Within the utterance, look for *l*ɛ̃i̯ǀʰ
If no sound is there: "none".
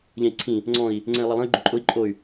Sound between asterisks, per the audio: ʎ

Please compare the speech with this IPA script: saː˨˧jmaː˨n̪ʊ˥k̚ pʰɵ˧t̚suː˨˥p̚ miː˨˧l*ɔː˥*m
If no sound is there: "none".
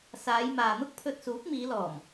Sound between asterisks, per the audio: ɔː˨˩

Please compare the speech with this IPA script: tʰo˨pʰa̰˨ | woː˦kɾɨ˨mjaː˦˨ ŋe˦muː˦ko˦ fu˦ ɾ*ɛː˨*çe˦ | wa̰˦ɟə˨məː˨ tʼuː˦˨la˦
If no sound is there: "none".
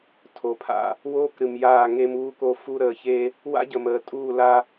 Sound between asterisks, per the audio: əː˨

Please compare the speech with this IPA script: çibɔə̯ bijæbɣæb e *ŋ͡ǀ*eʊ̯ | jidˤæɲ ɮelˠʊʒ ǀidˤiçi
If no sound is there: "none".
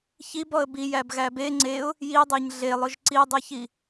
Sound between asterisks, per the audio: ŋ͡ǀ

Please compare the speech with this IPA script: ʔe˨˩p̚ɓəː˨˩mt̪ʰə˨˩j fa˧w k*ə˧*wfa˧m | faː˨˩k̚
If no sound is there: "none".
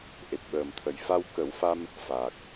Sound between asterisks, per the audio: ə˨˩˦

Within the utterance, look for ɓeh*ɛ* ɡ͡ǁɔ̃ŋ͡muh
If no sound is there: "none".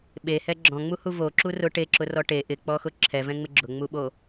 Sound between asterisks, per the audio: ɛ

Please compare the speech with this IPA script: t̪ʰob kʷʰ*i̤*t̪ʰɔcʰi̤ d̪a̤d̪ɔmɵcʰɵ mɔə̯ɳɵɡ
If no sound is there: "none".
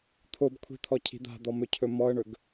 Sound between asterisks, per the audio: i̤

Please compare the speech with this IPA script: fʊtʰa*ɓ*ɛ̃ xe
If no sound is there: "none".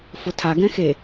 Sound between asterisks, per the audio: ɡ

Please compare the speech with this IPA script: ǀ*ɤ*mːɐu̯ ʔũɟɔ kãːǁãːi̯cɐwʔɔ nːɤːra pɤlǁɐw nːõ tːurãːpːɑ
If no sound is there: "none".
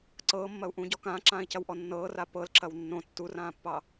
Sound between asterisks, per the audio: ɤː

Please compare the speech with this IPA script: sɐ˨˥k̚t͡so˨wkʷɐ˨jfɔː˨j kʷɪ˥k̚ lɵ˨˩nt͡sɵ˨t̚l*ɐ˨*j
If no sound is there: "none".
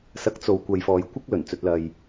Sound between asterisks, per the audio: ɐ˨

